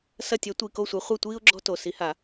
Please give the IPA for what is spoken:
s ɐ˦˨ tʲ ɛ˨˥ tʷ i˩˧˩ k o˦˨ sʷ e˨˥ χʷ i˦˨ tʷ iː˥ ʊ̯ ɡ͡ǁ ɔ̤˥ t o˩˧˩ s i˨˩˦ h a˨˩˦

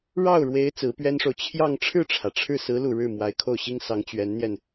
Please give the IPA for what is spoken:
ɻ ɑ˥˩ ʊ̯ ɻ w e˧˥ ɪ̯ t͡s ɹ̩˧˥ p ɥ ɛ˥ n ʂ o˨ ʊ̯ t͡ɕʰ j ɑ˥˧ ŋ ʈ͡ʂʰ ɻ̩˥˩ ʈ͡ʂʰ ä˩ ʈ͡ʂʰ ɻ̩˥˩ s ɹ̩˧˥ l u˨˩ ɻ ɻ̩˥˩ m w a˧˥ ɪ̯ kʰ o˥˩ ʊ̯ ɕ i˥ ŋ s ɑ˧˥ ŋ t͡ɕ ɥ ɛ˧˥ n n̪ j ɛ˧ n

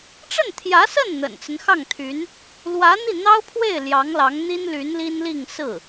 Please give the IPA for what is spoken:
ʈ͡ʂ ə˥˩ n t̪ʰ j ä˧˥ s ə˥˩ n n̪ ə̰˨˩ n t͡s ə˦ n x ɑ˥˩ ŋ t̪ʰ y˧˥ n | l w ä˧˥ n̪ i˥˩ n̪ ɑ˥ ʊ̯ pʰ w e˥˩ ɪ̯ l j ɑ˧˥ ŋ l ɑ˧˥ ŋ n̪ i˥ n l y˧˥ n l i˥ n l i˥˧ ŋ s ɹ̩˥˩

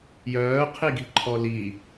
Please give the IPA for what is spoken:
j œː qʰ i ɡ i̤ ǃʰ ɔ l i

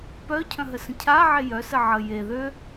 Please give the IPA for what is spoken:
p œ cʰ œ̃ ɦ ə s ə̃ cʰ a ʕ e j œ s ə ʕ ə j e ð ø

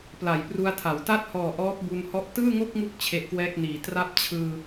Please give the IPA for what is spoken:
p l a˩˦ j p r u˧ a̯ tʰ a˩˦ w t a˥˩ t̚ h ɔː˨˩ ʔ ɔː˦˥ p̚ b u˧ n h ɔ˦˥ ʔ t ɯː˥˩ ŋ o˥˩ k̚ ŋ u˦˥ k̚ t͡ɕʰ e˦˥ ʔ k w ɛː˥˩ k̚ n iː˨˩ t r a˦˥ p̚ t͡ɕʰ ɯː˧

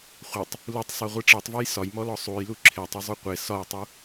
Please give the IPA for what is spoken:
χʷ e tˤ | l u tˤ sˤ e ʁʷ i ʈ͡ʂ e tˤ v ɒ j s ɒ j m ɔ l ɔ sˤ u j l u ǁʰ e tˤ i zˤ u qʷ e s ɒ j tˤ u

